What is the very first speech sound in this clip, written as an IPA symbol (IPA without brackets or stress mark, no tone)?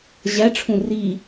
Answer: ʑ